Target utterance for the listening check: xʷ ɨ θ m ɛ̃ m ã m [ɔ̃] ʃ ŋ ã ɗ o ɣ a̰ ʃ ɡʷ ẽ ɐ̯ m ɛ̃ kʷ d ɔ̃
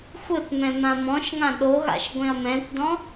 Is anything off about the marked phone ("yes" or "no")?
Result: no